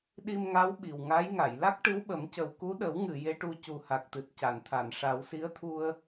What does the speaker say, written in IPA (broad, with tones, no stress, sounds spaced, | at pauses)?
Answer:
ɗ i˧ m ŋ a˧˥ w ɓ i˨˩ w ŋ a˧˥ j ŋ a˨˩˨ j l a˦˥ k̚ ʈ ɨ˧˥ w ɓ ə˨˩˦ m c ə˨˩ w k u˧˥ ɗ ə˨˩˦ w ŋ ɨ˨˩˨ j e˧˥ ʈ u˧ c u˨˩ h a˨˩ k̚ t̪ ɨ˨˩ t̚ c a˨˩˨ n t̪ʰ a˨˩˨ n ʂ a˨˩˦ w s i˧˥ ə̯ t̪ʰ u˧ ə̯